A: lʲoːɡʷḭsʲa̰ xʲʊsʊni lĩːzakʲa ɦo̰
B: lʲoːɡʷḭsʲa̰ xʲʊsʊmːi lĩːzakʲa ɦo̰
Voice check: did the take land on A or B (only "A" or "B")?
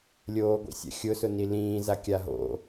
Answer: A